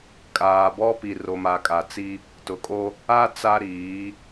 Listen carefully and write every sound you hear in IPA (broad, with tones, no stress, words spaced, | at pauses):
kʼaː˨ bɔ˦pi˨ ro˨ma˨kʼa˨t͡si˦ | tʊ˨kʼo˦ | a˦ t͡sa˦ɾiː˨˦